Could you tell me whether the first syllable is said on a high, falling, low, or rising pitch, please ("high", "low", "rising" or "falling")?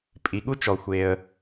low